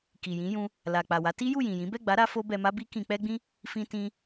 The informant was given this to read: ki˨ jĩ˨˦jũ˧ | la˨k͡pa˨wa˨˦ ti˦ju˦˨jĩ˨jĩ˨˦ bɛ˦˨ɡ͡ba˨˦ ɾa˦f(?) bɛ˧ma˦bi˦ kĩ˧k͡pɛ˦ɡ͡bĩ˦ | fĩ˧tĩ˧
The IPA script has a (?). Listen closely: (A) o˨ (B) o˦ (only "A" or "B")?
B